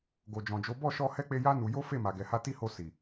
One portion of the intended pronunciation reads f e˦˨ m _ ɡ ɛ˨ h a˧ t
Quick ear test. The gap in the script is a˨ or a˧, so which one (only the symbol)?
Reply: a˨